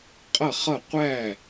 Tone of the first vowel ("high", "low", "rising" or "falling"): falling